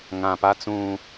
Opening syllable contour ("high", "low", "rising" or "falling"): low